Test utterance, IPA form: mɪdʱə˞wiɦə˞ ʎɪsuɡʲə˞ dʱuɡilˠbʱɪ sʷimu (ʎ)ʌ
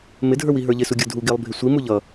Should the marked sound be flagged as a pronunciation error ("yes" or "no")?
no